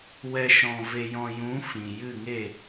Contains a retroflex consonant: no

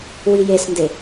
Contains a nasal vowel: no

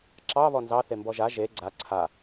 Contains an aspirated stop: yes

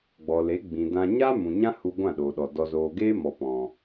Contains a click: no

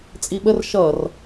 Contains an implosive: yes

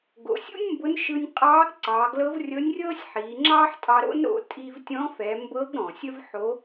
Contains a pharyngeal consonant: yes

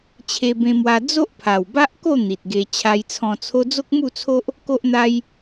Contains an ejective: no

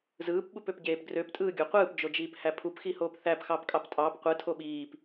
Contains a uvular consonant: yes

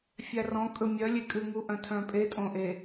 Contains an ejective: yes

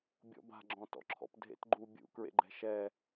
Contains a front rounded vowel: no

